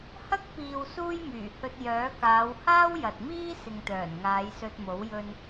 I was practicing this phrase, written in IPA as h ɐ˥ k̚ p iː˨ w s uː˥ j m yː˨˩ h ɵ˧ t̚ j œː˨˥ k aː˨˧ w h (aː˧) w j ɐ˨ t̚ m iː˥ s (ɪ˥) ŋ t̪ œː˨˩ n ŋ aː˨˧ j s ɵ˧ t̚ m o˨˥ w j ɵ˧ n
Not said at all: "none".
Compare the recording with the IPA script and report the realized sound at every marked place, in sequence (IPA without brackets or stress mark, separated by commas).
aː˥, ɪ˨